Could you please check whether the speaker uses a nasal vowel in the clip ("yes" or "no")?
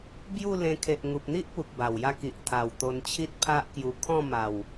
yes